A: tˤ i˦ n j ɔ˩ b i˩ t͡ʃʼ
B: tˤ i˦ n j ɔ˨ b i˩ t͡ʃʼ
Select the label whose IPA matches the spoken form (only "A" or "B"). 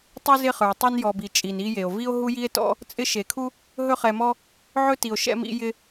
B